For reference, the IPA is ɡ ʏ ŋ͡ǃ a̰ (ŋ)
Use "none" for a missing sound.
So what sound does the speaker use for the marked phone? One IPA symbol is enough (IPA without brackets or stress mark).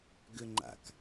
k